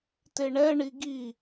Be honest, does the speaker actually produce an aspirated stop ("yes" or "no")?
no